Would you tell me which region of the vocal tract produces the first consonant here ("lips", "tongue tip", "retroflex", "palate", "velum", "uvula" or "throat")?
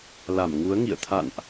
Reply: tongue tip